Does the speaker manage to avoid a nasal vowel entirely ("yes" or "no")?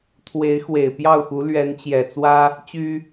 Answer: yes